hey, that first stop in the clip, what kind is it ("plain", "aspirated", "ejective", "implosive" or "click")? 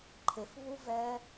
click